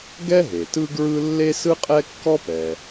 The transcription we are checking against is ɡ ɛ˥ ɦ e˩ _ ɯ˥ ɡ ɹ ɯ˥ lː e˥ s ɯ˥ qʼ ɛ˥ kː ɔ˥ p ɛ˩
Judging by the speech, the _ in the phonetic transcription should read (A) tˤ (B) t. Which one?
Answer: B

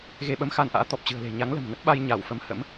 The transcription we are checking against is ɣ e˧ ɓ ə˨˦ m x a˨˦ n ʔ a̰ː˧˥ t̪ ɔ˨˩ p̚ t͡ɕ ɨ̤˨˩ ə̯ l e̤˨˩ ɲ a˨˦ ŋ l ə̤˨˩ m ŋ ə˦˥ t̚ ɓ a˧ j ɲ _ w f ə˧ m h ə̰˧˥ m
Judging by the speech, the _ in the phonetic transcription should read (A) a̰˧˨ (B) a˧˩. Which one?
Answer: B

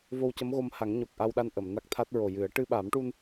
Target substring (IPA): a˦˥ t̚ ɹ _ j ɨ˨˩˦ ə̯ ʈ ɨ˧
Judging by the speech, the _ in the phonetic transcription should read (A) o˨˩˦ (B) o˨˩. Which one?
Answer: B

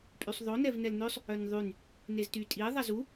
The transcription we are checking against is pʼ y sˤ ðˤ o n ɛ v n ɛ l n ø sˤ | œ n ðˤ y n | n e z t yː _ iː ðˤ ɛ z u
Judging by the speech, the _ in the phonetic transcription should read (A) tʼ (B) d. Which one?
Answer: A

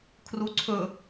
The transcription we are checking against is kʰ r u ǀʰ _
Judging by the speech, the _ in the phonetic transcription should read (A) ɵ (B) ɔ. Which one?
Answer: A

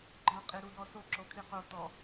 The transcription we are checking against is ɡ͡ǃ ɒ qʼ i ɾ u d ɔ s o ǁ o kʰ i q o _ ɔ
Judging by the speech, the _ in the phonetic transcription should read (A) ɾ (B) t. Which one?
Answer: B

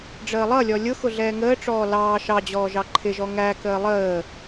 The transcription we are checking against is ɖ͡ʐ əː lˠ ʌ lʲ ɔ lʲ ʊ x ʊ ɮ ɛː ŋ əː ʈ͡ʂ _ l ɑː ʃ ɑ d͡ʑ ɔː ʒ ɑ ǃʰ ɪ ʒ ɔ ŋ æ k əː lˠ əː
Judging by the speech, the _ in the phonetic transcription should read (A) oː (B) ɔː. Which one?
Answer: B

